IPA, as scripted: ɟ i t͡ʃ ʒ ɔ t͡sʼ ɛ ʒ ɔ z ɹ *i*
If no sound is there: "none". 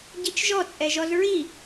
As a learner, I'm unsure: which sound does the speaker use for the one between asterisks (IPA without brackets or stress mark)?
i